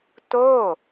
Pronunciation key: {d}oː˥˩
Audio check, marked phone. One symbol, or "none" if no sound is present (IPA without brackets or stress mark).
t